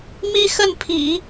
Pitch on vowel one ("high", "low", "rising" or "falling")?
high